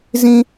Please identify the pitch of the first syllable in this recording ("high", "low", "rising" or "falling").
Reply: high